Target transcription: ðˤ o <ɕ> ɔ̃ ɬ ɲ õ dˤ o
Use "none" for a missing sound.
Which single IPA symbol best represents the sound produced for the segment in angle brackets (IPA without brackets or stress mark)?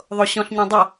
ɕ